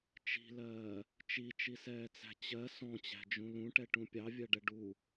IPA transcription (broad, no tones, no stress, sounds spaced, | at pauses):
t͡ʃ i̤ l ɜː | t͡ʃ i t͡ʃ i s ɛː t͡s æ̤ t͡ɕ ɜ s ɔ̃ t͡ɕ æ̤ d͡ʒ ũ l ũ ʈ ɛ ʈ ũ pʲ ɑ vʲ ɜ ɖ ɛ ɖ u